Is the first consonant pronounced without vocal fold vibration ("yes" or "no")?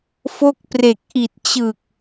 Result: yes